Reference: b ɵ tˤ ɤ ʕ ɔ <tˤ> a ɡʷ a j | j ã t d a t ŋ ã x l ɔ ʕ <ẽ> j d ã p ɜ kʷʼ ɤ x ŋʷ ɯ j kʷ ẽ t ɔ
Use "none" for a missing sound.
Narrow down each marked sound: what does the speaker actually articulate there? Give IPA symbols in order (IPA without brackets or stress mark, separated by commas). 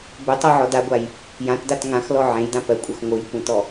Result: d, ẽ